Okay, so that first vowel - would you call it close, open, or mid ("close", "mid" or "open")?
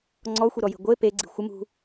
mid